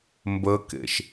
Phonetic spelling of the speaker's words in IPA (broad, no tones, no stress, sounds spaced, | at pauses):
m b ə k ḛ ʃ